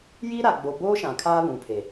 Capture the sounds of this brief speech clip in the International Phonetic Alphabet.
j iː˦ ɾ a˨ ɡ͡b o˨ b oː˦ ʃ ã˨ kʰ aː˦ β ũ˨ pʰ e˨

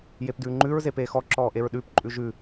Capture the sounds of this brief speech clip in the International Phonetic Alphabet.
j e p d ʉː ŋ͡ǃ ʉ ɹ z e p eː x ɔ ǁ ɔː ʔ e ɹ ɗ ʉː p ǃʼ ʉ ʒ ʉ

